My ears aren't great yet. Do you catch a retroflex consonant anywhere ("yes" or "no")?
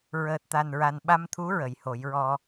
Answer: no